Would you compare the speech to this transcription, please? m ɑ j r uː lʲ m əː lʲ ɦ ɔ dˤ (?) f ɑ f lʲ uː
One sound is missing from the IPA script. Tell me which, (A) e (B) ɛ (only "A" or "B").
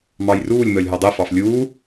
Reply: B